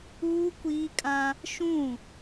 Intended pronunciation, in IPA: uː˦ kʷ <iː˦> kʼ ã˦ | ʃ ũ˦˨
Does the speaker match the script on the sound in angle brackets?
yes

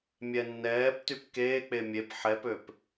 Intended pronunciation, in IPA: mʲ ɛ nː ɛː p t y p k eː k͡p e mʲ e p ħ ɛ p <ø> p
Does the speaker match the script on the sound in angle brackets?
yes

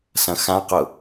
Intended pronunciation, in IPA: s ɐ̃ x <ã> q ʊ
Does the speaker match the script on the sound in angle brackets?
yes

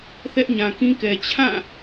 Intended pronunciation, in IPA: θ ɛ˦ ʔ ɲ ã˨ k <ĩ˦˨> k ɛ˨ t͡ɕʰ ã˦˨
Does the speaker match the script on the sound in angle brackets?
no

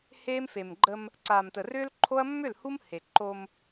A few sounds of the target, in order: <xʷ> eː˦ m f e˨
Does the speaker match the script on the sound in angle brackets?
no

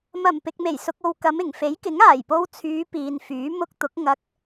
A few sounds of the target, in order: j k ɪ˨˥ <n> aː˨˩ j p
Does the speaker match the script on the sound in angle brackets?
no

